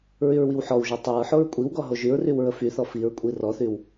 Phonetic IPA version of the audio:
ɹ y ɹ w i w ħ ɔ w ʒ o tˤ o ɹ ħ o ɹ kʷʼ i w ɡ ɔ ɦ o ʒ y ɹ r y w ɹ ə f y θ ɔ f i ɹ kʷʼ i r ɔ θ y w

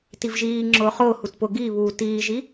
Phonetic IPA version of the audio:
t i v ʒ iː ŋ͡ǁ ʊː χ ʊː h u t p ʊ ɡ i β uː t iː ʒ i

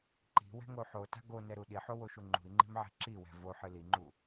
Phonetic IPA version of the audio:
ǃ i̤ w ɛ̤ ŋ o ħ o t a̤ ɡ o n ɛ ɾ u ɗ i ħ o w o ʃ u ŋ͡ǃ ṳ i̯ ŋ͡ǃ i̤ m ʕ ɛ̤ ǁ i w ɛ̤ v o ħ ɨ l i ŋ͡ǃ u

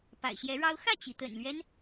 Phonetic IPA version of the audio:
p a̰˨˩ ɪ̯ ɕ j ɛ˧˥ ɻ ɑ˥ ʊ̯ x ä˥˩ t͡ɕ i˩ t̪ ə̰˨˩ n l ɥ ɛ˦ n

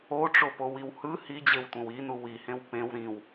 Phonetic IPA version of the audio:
o ʈ͡ʂ o p o w i w h ɯ h i d͡ʑ e w tʷ ẽ w i n u w i h ẽ w p ẽ w ɾ ĩ w

